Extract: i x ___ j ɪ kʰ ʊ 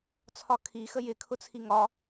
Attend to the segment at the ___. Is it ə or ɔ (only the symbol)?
ə